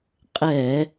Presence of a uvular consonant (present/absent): present